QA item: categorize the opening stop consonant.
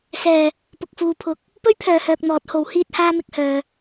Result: plain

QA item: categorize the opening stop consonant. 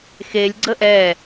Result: click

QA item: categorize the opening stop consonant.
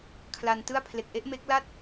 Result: aspirated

